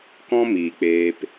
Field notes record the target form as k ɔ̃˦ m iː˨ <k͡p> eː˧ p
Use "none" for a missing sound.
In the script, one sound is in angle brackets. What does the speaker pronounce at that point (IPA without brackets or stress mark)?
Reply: k͡p